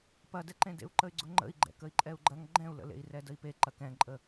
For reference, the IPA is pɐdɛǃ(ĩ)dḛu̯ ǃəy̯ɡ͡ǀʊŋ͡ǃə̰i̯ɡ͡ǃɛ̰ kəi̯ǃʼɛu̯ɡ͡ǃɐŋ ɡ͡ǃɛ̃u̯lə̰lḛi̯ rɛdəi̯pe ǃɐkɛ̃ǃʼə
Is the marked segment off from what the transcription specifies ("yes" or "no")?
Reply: yes